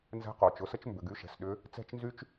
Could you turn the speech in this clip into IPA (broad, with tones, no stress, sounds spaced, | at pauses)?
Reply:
n z ɛ̤˧˥ q o˩ t͡ʃ ʊ˩˧ s ə˥ t͡ʃ m b ʏ˩˧ ɡ y˥ ʃ ɛ̤˩ s ɗ ʏ˧˥ | t͡s ɛ̤˥ t͡ʃ n z y˥ t͡ʃ